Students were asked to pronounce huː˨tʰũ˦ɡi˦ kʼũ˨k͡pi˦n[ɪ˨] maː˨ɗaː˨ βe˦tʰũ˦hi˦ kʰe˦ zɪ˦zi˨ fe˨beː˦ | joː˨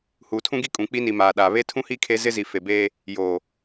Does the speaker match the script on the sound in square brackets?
no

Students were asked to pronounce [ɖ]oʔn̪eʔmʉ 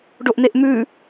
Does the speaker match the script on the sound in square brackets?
yes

